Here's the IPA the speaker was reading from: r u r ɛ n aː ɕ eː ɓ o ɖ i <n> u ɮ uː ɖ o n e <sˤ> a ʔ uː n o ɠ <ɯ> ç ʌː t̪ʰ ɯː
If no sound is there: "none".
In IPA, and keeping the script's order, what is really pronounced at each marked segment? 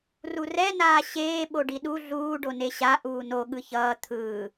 ɗ, ɕ, ɯ

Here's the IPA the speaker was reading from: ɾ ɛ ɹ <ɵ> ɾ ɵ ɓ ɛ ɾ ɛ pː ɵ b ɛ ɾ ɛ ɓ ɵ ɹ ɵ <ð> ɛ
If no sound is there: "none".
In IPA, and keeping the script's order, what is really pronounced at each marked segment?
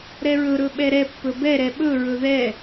ɵ, ð

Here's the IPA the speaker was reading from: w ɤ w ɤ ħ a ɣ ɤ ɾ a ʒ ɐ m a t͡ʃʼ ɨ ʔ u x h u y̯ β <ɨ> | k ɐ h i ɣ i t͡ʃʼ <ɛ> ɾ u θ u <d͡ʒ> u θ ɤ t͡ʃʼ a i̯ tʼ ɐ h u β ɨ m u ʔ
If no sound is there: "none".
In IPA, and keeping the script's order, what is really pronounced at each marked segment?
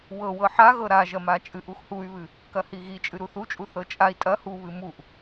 ɨ, ɨ, t͡ʃʼ

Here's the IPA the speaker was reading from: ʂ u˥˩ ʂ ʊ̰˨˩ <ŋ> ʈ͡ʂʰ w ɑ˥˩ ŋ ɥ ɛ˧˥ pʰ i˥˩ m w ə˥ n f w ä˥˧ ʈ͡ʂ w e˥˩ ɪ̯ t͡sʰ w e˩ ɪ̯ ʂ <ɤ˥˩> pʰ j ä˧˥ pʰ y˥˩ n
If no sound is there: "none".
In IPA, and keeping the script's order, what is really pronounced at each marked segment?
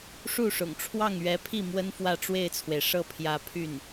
ŋ, ɤ˥˩

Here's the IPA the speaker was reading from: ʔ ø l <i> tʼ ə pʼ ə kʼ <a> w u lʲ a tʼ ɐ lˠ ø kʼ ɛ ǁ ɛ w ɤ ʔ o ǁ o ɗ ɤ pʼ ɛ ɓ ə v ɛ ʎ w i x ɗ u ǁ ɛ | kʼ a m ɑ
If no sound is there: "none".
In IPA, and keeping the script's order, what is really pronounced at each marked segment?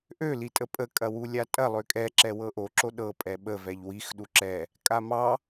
i, ɐ

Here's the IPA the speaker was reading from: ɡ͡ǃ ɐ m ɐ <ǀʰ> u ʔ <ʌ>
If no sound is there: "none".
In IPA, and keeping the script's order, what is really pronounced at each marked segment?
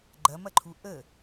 ǃʰ, ə

